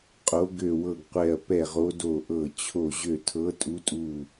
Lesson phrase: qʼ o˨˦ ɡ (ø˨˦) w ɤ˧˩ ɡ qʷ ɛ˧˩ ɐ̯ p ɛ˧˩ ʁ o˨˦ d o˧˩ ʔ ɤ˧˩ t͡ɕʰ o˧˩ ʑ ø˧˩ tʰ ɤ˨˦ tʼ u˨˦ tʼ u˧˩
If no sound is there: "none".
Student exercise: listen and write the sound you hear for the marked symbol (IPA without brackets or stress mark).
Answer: ø˧˩